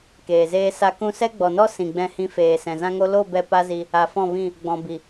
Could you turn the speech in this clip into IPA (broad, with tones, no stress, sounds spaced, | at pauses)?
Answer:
k eː˨ z eː˦ s a˦ k ũ˧ s ɛ˦ ɡ͡b ɔ˨ n ɔ˦ s ĩ˨ ɡ͡b ɛ̃˧ h ĩ˧ f eː˨ s ɛ̃˨ z ã˦ ŋ o˦ l o˦˨ b ɛ˧ p a˦ z i˧ | a˨ f ɔ̃˦˨ v ĩ˦˨ | ɡ͡b ɔ̃˨ b i˨